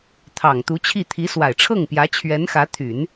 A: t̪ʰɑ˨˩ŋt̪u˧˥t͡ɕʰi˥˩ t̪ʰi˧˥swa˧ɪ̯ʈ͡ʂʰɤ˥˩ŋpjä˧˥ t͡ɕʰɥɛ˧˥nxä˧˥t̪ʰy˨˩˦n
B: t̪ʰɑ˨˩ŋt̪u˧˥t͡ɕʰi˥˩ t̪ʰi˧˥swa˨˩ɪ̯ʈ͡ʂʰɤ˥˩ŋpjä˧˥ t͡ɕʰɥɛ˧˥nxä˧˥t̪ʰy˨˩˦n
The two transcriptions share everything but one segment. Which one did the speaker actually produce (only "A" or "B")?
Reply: B